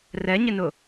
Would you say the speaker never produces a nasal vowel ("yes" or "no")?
yes